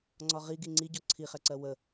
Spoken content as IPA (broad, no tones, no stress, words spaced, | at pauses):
ŋ͡ǀɒʁiɡi ŋ͡ǀiɟɔ ǀʰiχɛǀɜ wə